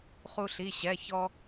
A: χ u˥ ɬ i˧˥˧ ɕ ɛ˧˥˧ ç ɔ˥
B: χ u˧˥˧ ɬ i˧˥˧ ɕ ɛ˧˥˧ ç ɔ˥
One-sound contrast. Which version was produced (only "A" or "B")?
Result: A